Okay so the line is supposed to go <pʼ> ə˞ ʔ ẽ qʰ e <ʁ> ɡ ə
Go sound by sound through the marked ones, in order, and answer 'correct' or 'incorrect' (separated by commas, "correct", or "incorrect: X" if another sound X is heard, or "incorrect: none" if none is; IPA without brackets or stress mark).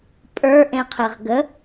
correct, correct